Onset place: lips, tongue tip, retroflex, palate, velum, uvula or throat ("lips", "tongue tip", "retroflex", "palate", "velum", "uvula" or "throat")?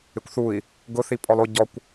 velum